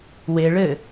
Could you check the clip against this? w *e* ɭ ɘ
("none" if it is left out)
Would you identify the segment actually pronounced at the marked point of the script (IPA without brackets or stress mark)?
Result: e